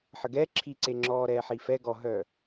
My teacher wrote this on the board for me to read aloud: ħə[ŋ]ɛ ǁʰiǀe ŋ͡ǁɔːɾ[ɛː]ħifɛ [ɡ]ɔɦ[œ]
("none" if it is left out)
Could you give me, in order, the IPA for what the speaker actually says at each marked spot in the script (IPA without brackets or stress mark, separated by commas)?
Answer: ɡ, ɛː, ɡ, œ